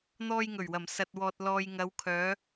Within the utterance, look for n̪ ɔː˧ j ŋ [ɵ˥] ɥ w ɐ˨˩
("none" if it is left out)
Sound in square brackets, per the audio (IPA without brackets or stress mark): ɵ˨˩